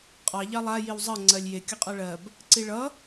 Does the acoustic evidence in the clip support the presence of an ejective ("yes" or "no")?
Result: yes